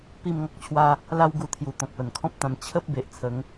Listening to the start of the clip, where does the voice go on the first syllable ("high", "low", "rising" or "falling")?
falling